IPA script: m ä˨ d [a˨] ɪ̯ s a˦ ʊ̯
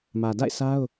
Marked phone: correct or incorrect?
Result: incorrect: a̰˦˨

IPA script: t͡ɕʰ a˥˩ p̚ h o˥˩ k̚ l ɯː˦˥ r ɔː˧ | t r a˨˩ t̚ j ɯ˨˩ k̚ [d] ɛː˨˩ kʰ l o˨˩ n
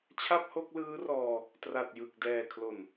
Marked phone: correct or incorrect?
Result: correct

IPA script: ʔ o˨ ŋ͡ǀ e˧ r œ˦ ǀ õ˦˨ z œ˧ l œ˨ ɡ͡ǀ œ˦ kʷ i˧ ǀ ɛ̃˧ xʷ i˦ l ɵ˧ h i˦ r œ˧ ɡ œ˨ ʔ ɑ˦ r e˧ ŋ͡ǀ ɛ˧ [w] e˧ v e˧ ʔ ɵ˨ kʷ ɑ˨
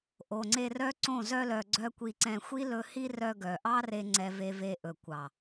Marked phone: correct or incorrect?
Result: incorrect: v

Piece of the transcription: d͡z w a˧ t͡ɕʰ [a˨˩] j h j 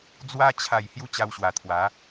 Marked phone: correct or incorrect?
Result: correct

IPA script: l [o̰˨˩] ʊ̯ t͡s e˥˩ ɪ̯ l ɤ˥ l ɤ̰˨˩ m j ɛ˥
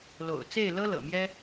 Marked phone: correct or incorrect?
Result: correct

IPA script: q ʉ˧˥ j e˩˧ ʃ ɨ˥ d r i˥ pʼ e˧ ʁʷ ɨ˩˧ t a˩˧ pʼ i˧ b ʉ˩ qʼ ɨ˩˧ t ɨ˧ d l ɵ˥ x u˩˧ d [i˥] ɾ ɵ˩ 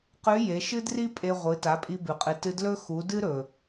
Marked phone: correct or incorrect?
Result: incorrect: ɨ˥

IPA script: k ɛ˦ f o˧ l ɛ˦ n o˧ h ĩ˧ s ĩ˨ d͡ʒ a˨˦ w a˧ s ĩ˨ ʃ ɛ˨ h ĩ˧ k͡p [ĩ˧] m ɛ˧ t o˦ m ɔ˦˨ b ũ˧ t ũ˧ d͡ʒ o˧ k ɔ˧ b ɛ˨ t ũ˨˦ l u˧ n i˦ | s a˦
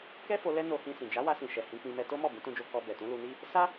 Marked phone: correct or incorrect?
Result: correct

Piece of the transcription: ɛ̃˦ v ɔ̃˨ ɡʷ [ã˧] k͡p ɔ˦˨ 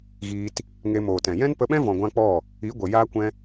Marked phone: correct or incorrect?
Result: correct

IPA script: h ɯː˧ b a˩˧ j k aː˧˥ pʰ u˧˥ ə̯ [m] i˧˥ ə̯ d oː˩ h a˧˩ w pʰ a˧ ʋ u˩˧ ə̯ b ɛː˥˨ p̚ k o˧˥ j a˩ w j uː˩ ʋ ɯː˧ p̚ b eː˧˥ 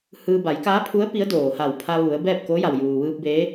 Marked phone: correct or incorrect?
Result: incorrect: p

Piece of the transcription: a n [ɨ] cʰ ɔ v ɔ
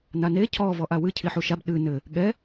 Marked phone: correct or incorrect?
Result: incorrect: e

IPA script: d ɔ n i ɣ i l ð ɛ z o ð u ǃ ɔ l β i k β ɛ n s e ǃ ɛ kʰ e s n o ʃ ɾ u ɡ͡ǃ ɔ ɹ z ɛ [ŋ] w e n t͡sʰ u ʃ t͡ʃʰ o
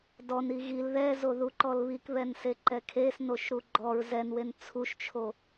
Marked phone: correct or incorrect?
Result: incorrect: n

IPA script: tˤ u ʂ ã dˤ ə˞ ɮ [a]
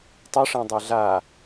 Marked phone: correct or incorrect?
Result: correct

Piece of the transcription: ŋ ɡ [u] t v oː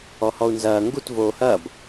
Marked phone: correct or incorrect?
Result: correct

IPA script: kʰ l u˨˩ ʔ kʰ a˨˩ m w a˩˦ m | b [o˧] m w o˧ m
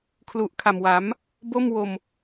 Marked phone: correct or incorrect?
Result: incorrect: o˥˩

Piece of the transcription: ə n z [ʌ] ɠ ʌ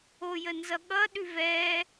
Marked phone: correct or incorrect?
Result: correct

